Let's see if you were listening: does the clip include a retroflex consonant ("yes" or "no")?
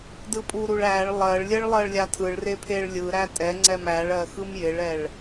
yes